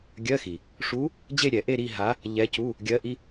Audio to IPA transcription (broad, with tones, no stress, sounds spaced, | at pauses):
ɡʲ ɜ˧˥˧ x i˩ | ʂ u˧˥ | d͡ʑ e˥˧ ɾʲ ɛ˨˩˦ ʔ e˥˧ ɾ i˥˧ ɦ a˧˥ | ʎ ɛ˧˥ c u˧˥˧ | ɡʲ ɜ˧˥ ʔ i˧˥˧